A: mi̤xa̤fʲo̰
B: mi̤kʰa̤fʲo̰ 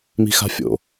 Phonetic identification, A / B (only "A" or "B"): A